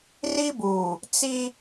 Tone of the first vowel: high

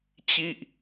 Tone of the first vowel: falling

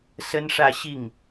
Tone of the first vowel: high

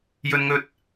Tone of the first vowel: high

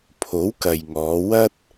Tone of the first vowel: rising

